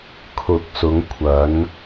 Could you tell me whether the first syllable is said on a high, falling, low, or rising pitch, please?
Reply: rising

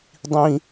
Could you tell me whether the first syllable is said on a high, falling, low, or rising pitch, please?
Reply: high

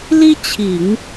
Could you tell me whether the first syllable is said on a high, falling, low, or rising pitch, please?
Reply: high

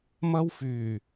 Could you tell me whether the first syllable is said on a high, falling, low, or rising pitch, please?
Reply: high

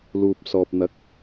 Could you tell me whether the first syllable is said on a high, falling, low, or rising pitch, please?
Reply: low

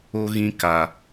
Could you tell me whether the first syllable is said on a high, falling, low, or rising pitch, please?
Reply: high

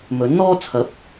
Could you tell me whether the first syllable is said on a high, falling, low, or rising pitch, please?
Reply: rising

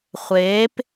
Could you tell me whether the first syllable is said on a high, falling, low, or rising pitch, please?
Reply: rising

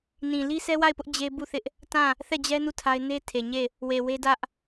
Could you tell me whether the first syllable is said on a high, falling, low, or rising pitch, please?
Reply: low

